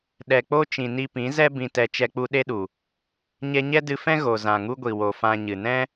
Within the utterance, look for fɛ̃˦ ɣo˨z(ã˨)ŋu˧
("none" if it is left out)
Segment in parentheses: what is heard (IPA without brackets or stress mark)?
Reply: ã˨